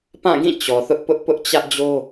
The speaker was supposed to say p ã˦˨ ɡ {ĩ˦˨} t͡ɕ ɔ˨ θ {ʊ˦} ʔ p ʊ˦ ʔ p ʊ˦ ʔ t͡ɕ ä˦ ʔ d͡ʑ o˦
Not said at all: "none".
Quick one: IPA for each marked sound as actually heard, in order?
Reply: ĩ˦˨, ʊ˦

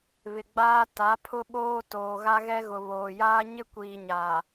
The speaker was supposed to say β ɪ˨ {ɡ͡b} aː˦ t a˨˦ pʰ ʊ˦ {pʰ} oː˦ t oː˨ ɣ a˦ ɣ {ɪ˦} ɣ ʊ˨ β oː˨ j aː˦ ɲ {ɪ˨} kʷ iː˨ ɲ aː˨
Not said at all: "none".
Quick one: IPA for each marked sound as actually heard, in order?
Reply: ɡ͡b, ɓ, ɛ˦, ɪ˦

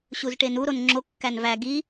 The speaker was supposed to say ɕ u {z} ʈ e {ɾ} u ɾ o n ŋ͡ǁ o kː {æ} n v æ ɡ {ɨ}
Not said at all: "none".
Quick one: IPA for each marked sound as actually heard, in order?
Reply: z, n, æ, i

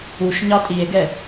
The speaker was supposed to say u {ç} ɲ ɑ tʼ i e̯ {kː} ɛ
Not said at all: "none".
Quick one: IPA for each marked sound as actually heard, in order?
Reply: ʃ, ɡ

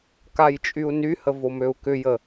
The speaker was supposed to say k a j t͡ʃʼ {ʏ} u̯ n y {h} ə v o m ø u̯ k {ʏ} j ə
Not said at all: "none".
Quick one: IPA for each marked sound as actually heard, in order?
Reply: y, h, ʏ

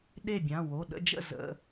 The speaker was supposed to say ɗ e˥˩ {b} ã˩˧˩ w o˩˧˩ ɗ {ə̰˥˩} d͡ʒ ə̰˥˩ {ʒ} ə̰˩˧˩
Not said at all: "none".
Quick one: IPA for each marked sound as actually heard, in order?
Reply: bʲ, ə̰˥˧, z

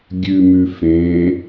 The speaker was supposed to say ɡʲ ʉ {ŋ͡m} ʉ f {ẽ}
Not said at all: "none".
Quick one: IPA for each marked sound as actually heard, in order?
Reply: m, ẽ

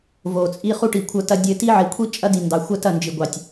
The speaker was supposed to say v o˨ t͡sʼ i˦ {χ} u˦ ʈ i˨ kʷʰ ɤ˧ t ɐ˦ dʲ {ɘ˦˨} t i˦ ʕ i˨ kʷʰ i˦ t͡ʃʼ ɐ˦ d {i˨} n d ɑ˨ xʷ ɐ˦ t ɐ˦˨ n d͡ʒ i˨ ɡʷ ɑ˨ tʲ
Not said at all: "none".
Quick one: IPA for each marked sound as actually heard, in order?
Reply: χ, ɘ˧, i˨

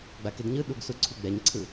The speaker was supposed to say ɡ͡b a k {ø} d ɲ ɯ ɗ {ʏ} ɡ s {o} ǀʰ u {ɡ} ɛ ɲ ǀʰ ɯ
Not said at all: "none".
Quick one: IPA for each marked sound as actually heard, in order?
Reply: e, u, u, ɡ͡b

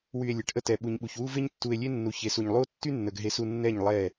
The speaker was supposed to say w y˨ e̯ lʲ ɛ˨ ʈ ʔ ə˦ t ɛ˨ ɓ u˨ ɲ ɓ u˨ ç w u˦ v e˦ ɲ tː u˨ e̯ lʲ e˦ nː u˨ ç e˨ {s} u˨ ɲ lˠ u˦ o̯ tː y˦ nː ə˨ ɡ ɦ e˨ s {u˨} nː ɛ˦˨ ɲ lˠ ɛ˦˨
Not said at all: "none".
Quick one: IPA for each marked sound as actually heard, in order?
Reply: s, u˨

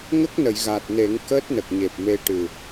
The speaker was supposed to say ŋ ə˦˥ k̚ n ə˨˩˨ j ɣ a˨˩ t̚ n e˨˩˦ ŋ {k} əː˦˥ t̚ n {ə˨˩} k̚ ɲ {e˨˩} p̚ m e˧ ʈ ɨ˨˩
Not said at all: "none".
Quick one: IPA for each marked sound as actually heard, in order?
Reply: k, ə˨˩, e˨˩

